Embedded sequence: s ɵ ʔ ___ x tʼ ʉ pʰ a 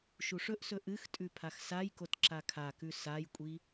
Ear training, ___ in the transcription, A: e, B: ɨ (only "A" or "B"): B